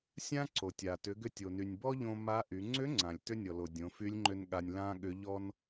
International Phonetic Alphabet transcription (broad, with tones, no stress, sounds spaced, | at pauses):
sʲ ã˥ ǀ o˩ tʲ a˩ t ʏ˩˧ ɡ ʏ˧ tʲ o˩ n y˩ nʲ b ɔ˥ ʎ õ˧ m a˧˥ ʔ y˩˧ ŋ͡ǀ ʏ˧˥ ŋ͡ǀ ã˩ lʲ t ʏ˥ nʲ ɔ˩ l o˩ dʲ õ˩˧ f y˧˥ lʲ ŋ͡ǃ ʏ˥ n ɠ a˧ nʲ l ã˥ ɠ ʏ˧˥ ʎ ɔ˥ n